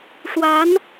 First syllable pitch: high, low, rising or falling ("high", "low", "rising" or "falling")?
rising